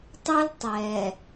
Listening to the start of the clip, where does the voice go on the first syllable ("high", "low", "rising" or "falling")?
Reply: high